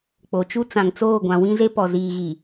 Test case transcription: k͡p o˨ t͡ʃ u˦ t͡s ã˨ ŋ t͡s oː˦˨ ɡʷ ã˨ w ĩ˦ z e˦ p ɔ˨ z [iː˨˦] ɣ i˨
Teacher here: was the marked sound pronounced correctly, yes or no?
no